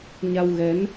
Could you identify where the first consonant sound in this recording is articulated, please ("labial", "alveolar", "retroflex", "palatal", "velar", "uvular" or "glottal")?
palatal